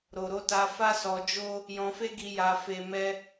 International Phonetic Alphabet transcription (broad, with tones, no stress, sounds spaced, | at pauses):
ɾ o˨ ɾ o˧ t a˧ f a˦ s ɔ˧ d͡ʒ o˦ | j ɔ̃˧ f e˦ ɡ i˧ j a˧ f e˧ m ɛ˦